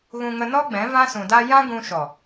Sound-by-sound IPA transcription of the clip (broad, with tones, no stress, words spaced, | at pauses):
ɣũ˧ŋə˧nɔ˦ɡ͡bɛ̃˨˦ vã˦sũ˨da˦ jã˦ ɡũ˧ʃɔ˨